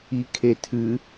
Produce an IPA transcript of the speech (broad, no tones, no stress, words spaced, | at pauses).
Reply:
ikʰetʰɨ